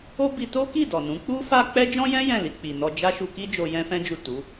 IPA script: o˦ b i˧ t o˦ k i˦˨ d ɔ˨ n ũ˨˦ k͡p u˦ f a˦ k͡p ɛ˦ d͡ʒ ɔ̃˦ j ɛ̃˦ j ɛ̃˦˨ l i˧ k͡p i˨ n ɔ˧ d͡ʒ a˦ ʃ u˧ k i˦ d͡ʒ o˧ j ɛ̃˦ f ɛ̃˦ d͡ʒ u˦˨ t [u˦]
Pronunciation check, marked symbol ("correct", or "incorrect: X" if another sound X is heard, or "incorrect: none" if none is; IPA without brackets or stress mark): incorrect: u˨˦